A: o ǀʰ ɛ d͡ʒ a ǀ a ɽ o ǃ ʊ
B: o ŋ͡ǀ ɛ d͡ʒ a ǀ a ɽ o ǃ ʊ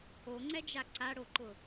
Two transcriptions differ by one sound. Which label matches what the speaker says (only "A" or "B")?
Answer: B